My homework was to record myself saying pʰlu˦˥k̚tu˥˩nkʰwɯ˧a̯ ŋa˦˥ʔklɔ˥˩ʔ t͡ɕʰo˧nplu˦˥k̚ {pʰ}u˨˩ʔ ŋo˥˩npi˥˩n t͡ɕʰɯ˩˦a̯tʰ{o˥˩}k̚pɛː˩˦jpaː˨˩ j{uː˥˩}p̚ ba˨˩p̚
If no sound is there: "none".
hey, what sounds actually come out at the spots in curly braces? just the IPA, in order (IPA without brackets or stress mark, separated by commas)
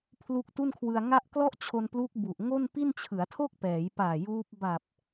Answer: b, o˥˩, uː˦˥